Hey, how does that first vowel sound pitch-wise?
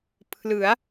rising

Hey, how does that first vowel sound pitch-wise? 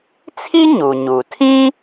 high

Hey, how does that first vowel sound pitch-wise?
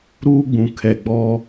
high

